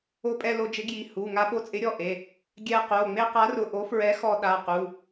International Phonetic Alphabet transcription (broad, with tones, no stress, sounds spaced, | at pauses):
o˧ pʼ ɛ˧ l o˧ d͡ʒ ɪ˨˥ ɡ j i˩˧˩ h u˩˧˩ ŋ a˧ ɓ o˧ t͡sʼ ɪ˨˥ ɾʲ ɔ˩˧˩ ʔ e˩˧˩ | ɡʲ ɛ˧ q o˩˧˩ ŋ͡m e˧ q a˨˥ r ʊ˩˧˩ ʔ o˨˥ f ɹ ɛ˨˥ x ɔ˧ ɗ a˩˧˩ q u˩˧˩